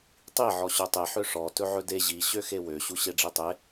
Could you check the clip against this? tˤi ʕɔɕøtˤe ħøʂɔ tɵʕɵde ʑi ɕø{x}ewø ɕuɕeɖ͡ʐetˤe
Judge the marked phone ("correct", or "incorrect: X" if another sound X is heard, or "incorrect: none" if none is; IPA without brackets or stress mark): correct